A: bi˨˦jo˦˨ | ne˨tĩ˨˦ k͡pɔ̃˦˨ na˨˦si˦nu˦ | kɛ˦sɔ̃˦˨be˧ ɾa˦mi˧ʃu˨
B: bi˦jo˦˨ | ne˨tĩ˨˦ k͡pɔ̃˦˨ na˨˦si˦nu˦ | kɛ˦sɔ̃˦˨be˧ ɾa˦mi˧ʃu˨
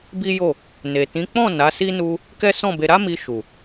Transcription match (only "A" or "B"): B